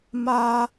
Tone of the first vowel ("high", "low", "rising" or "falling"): high